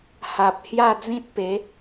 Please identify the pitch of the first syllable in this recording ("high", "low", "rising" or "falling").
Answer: low